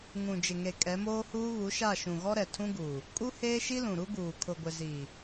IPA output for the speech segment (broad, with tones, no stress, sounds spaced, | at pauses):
ŋ ũ˨ d͡ʒ ɪ˨ ŋ e˨ kʼ ɛ˨˦ m oː˦ h uː˦ β u˨˦ ʃ a˦˨ ʃ ũ˨ ɣ ɔ˦ ɾ ɛ˨ tʰ ũ˦ ɡ uː˨ | kʼ u˦ h eː˦ ʃ i˦ l ũ˨ ɾ u˦ ɡ uː˨ kʰ ʊ˨ ɡʷ ɪ˨ z iː˨